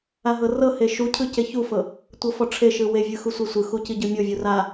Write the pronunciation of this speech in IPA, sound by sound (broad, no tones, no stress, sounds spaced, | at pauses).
a ɦ ɤ r ɤ h e ʃ u cʰ ɯ c e ç u f ɤ | tʷ ɤ f ɔ ʈ͡ʂʰ e ʃ ɯ w e vʲ ɯ x u sʷ e sʷ ɯ x u c i ɟ ɯ mʲ o vʲ u r a